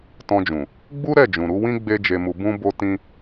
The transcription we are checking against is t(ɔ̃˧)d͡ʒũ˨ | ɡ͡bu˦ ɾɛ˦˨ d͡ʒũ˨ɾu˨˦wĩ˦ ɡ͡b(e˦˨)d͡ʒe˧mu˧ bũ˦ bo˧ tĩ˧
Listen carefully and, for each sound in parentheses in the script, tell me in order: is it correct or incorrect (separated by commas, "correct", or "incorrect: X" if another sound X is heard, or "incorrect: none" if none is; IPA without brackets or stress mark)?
correct, incorrect: e˦